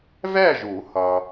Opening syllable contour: falling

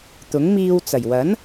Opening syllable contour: rising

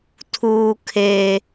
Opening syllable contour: high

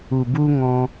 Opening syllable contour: low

